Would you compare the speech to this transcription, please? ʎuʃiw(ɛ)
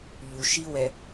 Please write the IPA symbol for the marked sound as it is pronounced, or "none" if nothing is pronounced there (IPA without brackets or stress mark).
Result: ɛ